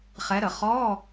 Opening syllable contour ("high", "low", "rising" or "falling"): rising